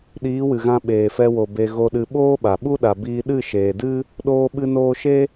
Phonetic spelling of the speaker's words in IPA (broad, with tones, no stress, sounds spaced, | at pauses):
ɗ iː˨˦ w ɨ˨ ɣ ã˧ ɓ eː˨ f ɛ˧ w o˨ b e˨ ɣ o˨ ɗ ɨ˨ ɓ oː˦ ɓ a˨ ɓ u˦ ɗ a˨ b iː˧ ɗ ɨ˦˨ ʃ eː˨ d ɨ˦ | ɗ oː˧ ɓ ɨ˧ n oː˧ ʃ e˦